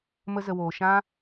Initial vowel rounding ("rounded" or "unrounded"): unrounded